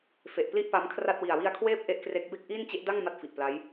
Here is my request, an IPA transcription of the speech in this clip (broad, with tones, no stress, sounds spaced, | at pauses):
f e˨˩ ʔ p l i˥˩ ʔ p a˦˥ m kʰ r a˥˩ t̚ w i˨˩ a̯ w i˧ a̯ kʰ w eː˥˩ p̚ ʔ e˥˩ ʔ k r e˦˥ k̚ b e˥˩ k̚ ʔ iː˥˩ n t͡ɕ e˦˥ ʔ d a˥˩ ŋ m a˥˩ t̚ f i˨˩ ʔ p l a˦˥ j